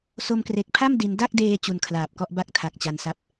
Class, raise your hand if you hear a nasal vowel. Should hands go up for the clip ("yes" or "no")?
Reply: no